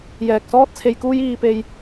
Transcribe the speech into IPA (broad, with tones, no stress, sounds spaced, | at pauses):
j ɛː˨ k̚ s ɔː˥ t̚ t͡sʰ e˧ j k uː˥ j iː˧ p e˧ j